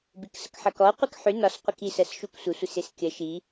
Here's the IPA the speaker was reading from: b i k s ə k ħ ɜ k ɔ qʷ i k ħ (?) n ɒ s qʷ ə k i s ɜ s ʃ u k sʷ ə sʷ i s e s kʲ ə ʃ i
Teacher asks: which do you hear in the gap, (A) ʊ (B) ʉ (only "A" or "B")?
B